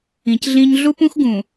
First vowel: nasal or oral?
nasal